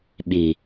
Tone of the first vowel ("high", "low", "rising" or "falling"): low